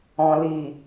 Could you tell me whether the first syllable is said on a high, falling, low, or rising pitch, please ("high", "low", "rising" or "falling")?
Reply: low